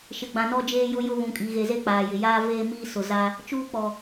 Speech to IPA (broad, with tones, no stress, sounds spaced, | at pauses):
ʃ ɪ˨ ɡ͡b ã˨ n ɔ˦ d͡ʒ eː˦ j ʊ˦ j ʊ˦ β ũ˨ kʼ i˨ ɣ e˨ z e˦ k͡p aː˨ j ɪ˨ j aː˦ v eː˦ m iː˦ s ʊ˨ z a˦ | t͡ʃ uː˦ k͡p ɔ˨